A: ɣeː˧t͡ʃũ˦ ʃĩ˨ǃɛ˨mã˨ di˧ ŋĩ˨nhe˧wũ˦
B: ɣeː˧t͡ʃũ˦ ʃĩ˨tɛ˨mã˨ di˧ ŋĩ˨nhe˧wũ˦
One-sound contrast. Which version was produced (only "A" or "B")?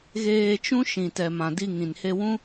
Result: B